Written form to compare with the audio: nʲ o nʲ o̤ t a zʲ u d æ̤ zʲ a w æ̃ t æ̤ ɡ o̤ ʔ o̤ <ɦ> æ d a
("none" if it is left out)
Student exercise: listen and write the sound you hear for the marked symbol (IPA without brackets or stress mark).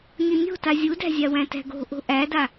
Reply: ʔ